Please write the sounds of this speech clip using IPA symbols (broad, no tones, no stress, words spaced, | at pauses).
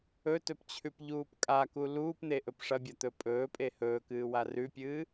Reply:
ɵtɵpt͡ɕʰʉpʎuːp kʼaku luːpn̪eʔɵp ʂɐbʲɐt̪ɵ pʼɵːpʼe hɵːkɨːwa rʉpʲɨː